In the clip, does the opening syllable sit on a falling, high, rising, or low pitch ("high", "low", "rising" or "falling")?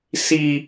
high